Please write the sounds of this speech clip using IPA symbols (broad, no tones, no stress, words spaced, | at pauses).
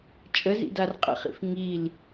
t͡ʃʼə zḭdarqʼə̰χḭf ŋil